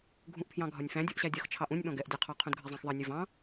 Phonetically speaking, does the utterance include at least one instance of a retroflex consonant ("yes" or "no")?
no